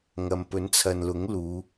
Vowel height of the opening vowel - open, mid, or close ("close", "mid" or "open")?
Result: open